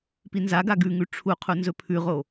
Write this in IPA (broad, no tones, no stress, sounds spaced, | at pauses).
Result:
p i n z a ɡ a ɡ ʉ ŋ ʉ ʈ͡ʂʰ u qʰ u n z ɵ pʰ ʉ ʁ o